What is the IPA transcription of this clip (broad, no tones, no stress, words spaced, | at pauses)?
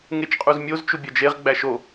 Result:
ŋet͡ʃqʼuzmʲoz t͡ʃubʲɒd͡ʒeʁ ɡ͡bæʃo